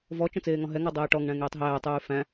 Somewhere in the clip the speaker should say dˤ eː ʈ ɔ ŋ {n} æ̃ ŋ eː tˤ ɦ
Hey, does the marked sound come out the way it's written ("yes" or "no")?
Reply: no